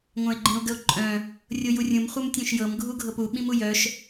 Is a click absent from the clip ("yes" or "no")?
no